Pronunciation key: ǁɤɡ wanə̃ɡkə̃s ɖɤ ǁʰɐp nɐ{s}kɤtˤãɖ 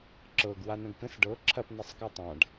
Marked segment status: incorrect: sˤ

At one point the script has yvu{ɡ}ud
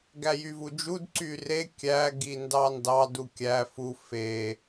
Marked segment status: incorrect: d͡ʒ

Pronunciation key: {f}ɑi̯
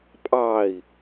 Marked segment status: incorrect: pʼ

